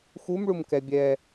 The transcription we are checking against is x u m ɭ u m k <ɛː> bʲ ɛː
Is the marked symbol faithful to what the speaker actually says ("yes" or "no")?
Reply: no